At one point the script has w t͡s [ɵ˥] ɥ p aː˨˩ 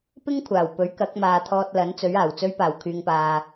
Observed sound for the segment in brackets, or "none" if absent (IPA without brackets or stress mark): ɵ˧